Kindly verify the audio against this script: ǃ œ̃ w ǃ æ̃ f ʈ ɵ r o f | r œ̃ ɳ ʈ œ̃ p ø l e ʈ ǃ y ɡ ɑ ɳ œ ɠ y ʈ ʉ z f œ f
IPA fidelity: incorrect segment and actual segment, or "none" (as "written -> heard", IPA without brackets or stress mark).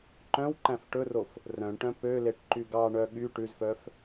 none